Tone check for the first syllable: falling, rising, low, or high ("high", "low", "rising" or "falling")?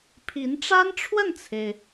rising